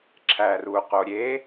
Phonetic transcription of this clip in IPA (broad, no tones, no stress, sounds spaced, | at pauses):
ǁʰ æ r u q o ɾʲ e